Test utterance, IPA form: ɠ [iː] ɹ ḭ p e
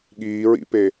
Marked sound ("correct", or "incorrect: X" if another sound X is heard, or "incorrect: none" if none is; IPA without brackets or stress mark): correct